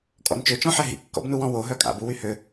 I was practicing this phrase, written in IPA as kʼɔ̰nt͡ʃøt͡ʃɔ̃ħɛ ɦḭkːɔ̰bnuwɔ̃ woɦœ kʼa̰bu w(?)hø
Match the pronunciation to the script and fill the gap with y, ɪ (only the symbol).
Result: y